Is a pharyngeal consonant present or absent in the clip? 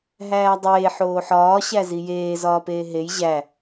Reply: present